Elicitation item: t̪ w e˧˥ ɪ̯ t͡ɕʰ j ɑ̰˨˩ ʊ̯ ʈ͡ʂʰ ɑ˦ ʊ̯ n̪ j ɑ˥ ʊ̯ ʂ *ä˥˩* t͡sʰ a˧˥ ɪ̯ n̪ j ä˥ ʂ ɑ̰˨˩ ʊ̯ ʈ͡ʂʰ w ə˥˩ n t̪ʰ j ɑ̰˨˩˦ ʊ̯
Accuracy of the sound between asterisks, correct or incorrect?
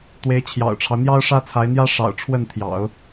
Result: incorrect